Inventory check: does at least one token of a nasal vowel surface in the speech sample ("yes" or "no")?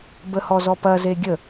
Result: no